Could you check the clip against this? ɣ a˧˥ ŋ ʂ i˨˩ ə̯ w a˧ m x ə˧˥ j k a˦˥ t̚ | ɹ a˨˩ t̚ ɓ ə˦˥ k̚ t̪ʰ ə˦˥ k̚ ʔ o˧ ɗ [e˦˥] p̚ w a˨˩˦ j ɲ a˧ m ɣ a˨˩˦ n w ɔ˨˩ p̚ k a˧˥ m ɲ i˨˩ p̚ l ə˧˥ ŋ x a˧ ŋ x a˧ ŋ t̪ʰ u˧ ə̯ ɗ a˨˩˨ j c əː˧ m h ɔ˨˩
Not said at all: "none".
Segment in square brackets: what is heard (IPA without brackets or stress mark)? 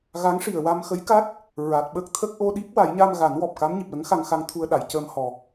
i˦˥